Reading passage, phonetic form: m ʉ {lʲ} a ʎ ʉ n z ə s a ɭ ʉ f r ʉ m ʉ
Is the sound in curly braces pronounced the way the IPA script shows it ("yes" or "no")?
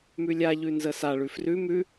yes